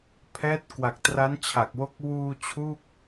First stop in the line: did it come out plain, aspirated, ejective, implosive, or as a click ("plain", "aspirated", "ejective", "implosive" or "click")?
aspirated